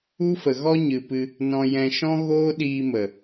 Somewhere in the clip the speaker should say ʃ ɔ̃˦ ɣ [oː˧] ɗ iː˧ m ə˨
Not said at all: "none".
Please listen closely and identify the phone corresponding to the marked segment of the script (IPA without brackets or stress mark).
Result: oː˦